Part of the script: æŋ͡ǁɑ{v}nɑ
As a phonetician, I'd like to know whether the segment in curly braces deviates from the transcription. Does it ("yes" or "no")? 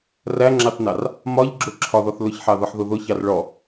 yes